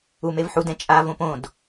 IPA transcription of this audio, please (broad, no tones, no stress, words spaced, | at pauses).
umevħudɛ̃ t͡ʃʼa võpõd